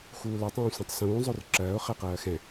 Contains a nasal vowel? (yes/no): yes